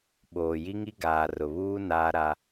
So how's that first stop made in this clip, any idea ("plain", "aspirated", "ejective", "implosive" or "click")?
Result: implosive